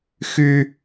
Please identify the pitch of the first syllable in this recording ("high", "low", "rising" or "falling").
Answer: high